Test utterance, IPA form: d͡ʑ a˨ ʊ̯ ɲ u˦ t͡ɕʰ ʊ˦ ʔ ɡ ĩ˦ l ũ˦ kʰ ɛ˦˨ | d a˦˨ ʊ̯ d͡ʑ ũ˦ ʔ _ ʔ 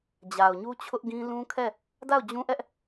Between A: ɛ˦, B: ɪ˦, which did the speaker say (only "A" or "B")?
A